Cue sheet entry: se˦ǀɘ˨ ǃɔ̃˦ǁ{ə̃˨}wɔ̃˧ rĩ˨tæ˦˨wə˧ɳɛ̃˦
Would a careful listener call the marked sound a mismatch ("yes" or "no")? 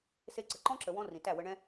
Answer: yes